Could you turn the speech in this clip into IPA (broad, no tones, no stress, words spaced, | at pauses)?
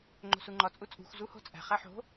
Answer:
ŋ͡ǃo̤suŋ͡ǃɒ t͡sʼut͡sʼṳxʷ zuho̤t͡sʼæ̤ χæħo̤